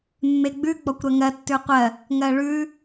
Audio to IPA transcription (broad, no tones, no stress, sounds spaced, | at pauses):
mː e ɡ͡b ʉ ɡ͡b ɔ kʷ ɾ ɜ ŋ ɜ tː ʉ qʷ ɜ | ŋ ɜ ɭ ʉ